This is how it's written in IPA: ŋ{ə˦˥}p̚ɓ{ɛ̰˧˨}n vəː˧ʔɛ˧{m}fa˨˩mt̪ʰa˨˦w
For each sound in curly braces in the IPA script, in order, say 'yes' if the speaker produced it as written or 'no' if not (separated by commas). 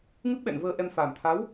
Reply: no, yes, yes